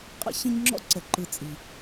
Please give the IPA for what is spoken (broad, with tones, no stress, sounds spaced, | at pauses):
qʼ ə̰˦ ç ə̃˦ ɲ ŋ͡ǁ ɔ̰˦ ǀ ə˨ ǃ ɯ˨ t͡sʼ i˨